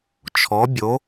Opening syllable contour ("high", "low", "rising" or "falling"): rising